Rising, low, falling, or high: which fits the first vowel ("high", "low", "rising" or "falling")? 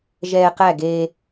high